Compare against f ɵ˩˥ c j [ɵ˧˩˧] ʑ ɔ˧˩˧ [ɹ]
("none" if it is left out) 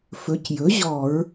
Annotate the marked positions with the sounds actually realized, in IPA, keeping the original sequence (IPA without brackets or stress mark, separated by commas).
ɵ˩˥, ɹ